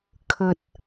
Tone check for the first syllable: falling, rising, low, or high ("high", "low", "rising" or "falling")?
low